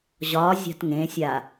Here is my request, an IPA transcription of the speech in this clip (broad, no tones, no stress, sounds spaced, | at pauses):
ʑ ɒ zʲ a̤ t ŋ ẽ sʲ a